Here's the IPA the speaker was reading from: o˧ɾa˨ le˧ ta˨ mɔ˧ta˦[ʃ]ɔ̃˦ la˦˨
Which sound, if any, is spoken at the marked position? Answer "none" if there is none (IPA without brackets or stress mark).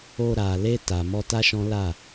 ʃ